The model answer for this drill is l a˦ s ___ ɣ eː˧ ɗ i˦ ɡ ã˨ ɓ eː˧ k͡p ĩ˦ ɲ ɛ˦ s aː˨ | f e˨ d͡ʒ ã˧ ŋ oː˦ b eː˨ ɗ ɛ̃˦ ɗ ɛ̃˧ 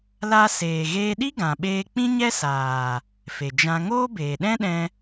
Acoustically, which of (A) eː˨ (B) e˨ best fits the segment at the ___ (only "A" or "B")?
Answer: A